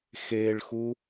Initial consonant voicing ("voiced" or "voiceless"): voiceless